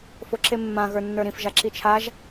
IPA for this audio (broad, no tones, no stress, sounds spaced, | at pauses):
f o ǁ e mː ã ɣ ə˞ nː ə˞ ɾ ĩ f ʒ a ǁ i t͡ʃʰ a ʒ